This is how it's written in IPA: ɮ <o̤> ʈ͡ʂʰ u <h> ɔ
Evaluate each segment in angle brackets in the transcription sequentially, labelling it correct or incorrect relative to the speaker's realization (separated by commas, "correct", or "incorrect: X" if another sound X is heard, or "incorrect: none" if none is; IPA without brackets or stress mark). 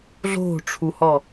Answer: correct, correct